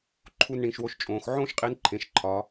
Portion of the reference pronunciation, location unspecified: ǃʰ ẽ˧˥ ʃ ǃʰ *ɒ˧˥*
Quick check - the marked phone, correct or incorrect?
correct